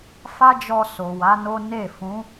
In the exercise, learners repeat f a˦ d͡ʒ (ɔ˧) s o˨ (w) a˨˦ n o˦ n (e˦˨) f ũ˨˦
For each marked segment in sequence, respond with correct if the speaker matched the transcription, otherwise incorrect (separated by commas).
correct, correct, correct